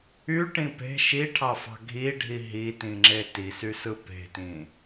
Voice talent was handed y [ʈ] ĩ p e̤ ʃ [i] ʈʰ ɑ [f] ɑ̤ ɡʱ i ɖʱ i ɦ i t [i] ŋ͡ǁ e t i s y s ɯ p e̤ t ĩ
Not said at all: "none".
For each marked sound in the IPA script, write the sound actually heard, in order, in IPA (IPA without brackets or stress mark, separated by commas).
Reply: ʈ, i, f, ĩ